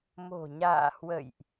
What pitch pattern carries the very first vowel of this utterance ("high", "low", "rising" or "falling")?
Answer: low